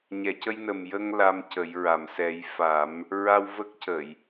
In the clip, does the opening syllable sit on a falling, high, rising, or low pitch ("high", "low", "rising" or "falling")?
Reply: low